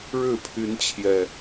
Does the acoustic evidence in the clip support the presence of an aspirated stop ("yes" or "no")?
yes